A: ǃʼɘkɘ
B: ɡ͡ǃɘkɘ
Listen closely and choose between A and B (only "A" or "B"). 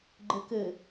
B